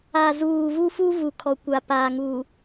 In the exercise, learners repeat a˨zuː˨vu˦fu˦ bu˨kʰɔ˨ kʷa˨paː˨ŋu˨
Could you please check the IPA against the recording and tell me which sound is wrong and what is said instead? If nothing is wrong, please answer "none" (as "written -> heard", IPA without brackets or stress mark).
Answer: b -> v